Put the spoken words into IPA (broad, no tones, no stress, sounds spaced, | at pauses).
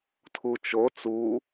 tʰ u t͡ʃ o t͡s u